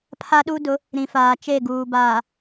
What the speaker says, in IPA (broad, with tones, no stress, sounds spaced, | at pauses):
pʰ a˦ ɗ u˦ d ʊ˨˦ | ɾ ĩ˨ f aː˨ t͡ʃ e˦˨ ɡ uː˨ b aː˨